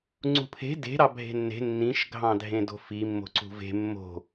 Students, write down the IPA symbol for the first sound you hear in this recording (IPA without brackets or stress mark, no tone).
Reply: ŋ͡ǀ